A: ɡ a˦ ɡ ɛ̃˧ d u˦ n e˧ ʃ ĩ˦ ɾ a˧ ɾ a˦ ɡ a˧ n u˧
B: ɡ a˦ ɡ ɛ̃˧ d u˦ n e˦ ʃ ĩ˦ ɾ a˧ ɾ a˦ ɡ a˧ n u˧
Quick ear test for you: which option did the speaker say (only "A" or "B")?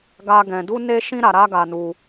B